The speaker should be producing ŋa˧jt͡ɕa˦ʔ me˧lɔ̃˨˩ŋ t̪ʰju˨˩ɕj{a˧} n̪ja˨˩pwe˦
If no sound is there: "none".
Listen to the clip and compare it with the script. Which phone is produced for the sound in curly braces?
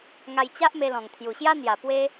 a˦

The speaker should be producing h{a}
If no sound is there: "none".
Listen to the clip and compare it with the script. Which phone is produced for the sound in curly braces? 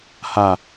a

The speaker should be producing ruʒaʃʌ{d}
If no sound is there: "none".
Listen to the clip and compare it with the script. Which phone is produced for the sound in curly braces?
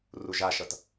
t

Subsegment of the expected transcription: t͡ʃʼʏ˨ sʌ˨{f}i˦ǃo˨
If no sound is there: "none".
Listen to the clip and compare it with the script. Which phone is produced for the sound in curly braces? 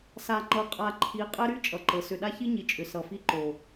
f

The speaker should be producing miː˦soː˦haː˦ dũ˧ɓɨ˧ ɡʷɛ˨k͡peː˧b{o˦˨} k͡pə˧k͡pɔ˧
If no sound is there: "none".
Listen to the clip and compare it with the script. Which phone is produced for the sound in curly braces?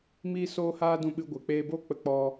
o˦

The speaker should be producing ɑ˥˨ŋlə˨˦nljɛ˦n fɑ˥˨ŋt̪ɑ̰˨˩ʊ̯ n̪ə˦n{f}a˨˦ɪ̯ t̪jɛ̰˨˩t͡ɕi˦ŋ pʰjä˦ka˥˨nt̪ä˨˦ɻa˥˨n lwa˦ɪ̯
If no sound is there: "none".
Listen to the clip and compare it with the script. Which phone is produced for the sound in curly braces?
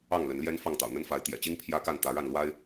f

